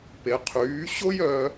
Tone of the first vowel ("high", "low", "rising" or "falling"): low